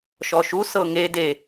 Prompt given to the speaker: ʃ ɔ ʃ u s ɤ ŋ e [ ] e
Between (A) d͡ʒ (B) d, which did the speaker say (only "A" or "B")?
B